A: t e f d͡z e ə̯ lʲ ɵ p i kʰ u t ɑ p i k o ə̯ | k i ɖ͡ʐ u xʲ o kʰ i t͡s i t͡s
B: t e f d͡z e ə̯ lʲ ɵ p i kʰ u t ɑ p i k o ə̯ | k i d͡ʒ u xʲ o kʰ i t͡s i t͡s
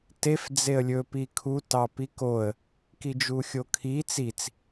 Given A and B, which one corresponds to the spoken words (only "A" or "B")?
B